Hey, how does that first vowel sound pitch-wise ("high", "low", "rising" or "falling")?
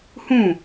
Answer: falling